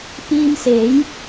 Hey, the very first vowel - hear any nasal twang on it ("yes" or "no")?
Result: no